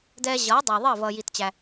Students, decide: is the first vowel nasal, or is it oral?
oral